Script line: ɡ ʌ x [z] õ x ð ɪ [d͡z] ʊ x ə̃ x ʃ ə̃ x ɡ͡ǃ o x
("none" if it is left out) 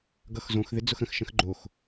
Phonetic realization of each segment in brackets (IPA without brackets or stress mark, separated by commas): z, d͡z